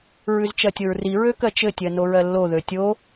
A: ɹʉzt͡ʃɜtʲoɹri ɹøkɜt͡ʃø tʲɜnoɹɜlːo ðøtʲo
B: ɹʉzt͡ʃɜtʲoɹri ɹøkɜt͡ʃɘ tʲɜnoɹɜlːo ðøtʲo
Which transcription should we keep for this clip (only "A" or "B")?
B